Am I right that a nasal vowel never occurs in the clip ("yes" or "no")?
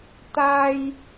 yes